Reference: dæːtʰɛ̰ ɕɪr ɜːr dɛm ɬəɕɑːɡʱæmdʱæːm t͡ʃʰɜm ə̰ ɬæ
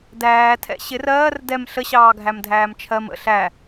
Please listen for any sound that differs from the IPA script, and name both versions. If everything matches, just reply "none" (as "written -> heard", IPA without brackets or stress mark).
none